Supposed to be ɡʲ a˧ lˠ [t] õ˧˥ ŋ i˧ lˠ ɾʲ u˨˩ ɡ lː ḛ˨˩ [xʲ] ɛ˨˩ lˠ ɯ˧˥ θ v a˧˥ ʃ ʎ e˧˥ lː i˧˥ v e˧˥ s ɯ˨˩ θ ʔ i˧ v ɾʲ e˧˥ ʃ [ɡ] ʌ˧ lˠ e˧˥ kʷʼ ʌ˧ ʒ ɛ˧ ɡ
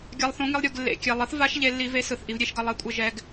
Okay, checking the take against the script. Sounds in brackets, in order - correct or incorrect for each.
incorrect: θ, incorrect: kʲ, correct

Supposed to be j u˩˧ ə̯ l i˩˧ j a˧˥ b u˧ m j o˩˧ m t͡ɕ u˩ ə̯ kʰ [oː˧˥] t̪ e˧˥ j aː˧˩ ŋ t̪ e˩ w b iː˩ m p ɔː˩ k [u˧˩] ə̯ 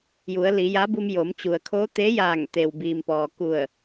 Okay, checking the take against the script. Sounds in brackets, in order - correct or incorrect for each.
correct, correct

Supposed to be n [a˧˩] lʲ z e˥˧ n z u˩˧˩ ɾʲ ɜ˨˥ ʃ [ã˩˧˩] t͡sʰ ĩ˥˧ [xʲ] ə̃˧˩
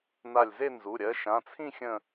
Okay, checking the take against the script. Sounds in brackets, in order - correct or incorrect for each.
correct, correct, correct

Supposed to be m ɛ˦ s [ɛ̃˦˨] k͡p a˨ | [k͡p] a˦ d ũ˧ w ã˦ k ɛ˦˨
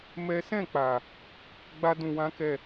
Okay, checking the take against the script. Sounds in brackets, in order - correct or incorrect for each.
correct, incorrect: ɡ͡b

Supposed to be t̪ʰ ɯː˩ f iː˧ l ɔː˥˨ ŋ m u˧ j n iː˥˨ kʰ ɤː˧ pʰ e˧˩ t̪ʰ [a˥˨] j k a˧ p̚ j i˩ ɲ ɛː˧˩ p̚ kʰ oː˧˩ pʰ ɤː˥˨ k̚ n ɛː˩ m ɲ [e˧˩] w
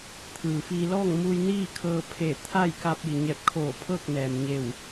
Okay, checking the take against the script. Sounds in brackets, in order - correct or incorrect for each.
correct, correct

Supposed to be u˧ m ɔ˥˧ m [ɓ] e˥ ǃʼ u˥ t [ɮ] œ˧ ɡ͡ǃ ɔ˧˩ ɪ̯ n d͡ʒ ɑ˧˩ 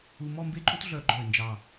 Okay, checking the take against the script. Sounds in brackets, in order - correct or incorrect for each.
incorrect: b, correct

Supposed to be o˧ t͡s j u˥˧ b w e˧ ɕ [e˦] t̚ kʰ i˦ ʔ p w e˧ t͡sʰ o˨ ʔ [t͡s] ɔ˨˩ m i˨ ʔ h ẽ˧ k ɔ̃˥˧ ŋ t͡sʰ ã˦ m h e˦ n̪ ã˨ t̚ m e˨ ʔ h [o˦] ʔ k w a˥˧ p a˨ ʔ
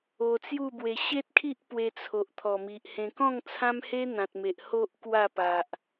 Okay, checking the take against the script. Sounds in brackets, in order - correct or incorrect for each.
correct, incorrect: t̪ʰ, correct

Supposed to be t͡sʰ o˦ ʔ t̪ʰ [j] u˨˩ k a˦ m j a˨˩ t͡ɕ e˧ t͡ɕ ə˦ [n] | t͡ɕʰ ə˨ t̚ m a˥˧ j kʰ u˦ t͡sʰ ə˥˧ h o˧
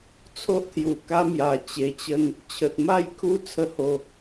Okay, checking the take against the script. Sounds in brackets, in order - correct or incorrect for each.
correct, correct

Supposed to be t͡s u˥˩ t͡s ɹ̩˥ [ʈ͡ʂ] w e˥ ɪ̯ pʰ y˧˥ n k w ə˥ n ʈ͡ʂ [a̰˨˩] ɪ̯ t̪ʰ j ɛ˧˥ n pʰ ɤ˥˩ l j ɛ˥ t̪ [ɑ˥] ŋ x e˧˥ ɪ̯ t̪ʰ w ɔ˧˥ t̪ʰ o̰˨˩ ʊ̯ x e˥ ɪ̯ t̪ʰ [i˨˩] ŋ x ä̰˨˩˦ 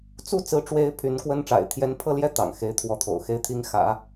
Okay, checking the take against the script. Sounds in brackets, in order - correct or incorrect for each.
correct, correct, incorrect: ɑ̰˨˩, incorrect: i˥

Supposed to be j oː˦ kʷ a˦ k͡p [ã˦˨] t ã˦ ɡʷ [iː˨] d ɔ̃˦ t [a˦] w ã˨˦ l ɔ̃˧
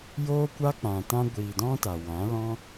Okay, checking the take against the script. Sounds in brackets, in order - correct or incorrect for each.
incorrect: ã˨, correct, incorrect: a˨

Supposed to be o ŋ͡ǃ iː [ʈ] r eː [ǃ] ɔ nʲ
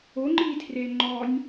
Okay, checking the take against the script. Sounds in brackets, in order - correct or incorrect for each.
incorrect: tʰ, incorrect: ŋ͡ǃ

